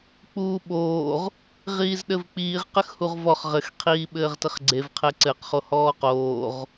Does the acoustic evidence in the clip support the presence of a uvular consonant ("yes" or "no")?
yes